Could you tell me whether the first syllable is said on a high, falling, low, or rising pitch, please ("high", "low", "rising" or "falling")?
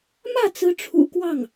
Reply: falling